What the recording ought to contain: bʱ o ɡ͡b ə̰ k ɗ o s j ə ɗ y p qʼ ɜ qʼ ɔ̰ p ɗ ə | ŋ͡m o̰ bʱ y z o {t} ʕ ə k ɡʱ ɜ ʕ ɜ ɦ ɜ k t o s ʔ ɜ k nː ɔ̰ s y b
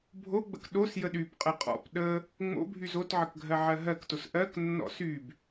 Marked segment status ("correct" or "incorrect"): correct